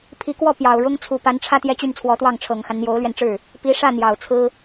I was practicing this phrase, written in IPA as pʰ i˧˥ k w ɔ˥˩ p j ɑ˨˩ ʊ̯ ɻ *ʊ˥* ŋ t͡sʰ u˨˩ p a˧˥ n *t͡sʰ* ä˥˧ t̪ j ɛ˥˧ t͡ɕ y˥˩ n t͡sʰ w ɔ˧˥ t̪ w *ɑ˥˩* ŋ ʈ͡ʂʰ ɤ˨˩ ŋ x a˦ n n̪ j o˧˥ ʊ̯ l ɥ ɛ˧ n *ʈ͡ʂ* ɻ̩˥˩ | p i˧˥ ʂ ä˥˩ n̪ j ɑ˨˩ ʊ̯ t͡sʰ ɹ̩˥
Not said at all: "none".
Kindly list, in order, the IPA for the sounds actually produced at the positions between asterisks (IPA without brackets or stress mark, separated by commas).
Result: ʊ˥, ʈ͡ʂʰ, ɑ˥˩, ʈ͡ʂ